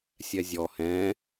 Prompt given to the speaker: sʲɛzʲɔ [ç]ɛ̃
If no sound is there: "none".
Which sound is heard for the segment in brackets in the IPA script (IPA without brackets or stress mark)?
h